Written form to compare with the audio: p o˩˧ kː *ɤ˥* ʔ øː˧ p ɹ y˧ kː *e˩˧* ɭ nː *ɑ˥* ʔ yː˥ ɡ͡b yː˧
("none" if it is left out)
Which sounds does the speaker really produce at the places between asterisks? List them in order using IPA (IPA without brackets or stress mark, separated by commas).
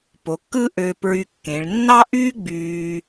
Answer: ɯ˥, ẽ˩˧, ɑ˥